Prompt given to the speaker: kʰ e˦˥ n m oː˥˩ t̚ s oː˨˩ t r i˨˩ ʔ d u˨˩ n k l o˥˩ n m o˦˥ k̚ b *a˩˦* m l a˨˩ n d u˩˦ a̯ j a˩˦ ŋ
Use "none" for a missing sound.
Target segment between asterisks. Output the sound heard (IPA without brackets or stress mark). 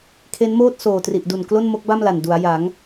a˥˩